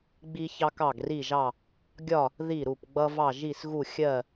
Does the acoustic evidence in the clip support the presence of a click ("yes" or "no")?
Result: no